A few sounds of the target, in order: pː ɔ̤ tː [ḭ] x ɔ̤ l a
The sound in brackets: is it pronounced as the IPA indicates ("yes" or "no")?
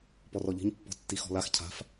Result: no